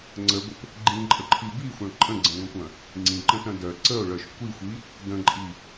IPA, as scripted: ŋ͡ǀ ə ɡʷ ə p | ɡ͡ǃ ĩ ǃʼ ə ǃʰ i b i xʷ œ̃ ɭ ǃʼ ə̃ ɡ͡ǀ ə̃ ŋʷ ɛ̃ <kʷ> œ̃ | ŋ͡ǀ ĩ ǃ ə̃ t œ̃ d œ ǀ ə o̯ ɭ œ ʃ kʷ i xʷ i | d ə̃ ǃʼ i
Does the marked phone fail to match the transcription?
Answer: no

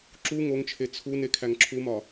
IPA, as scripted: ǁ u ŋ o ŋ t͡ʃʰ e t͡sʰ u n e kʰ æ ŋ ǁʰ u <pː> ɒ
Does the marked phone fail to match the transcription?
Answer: yes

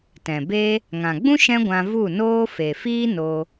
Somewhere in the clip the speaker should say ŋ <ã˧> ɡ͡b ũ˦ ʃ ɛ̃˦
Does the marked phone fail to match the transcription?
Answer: yes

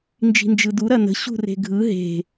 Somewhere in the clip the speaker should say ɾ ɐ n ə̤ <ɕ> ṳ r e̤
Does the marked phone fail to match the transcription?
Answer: no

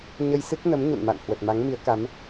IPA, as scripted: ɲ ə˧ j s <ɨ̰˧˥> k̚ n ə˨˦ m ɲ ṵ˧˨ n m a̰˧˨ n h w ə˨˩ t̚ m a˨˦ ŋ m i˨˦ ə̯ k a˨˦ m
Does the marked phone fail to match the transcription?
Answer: yes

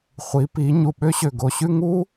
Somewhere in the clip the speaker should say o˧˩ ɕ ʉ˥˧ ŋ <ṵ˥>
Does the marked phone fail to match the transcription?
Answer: yes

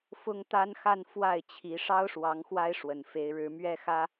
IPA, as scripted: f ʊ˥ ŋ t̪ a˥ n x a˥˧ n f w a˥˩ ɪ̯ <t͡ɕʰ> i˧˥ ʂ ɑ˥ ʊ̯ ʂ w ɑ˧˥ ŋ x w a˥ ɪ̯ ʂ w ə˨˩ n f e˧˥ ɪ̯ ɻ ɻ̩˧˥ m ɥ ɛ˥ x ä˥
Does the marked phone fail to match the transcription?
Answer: no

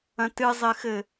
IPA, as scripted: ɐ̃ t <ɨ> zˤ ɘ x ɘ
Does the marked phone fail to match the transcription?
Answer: no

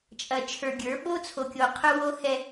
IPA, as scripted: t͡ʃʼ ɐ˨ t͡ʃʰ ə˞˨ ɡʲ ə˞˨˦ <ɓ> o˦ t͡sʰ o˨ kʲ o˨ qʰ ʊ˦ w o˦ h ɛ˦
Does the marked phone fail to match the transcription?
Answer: no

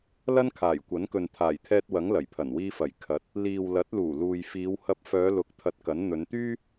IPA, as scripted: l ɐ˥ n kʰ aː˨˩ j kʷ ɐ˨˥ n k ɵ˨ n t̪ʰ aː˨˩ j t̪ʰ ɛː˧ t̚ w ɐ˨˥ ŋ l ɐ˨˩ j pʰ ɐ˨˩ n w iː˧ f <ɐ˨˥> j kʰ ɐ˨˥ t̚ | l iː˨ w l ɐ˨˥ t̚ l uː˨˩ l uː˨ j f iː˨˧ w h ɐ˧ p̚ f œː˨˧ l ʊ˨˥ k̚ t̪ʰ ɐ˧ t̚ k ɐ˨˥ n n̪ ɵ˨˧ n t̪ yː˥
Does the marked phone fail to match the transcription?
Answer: yes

